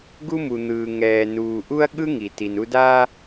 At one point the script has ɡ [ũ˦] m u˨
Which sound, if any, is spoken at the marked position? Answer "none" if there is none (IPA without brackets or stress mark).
u˦